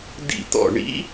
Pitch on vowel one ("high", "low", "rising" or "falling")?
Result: falling